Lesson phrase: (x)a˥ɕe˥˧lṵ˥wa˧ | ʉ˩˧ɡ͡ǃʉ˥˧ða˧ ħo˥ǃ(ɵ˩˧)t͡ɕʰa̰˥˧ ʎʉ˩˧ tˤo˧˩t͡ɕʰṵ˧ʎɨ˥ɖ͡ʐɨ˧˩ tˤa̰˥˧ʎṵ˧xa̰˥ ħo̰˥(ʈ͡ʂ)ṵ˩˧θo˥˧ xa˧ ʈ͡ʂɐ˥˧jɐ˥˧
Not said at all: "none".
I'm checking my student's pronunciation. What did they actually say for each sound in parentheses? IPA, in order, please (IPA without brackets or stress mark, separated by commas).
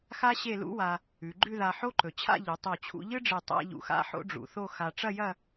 x, ɵ˩˧, ɖ͡ʐ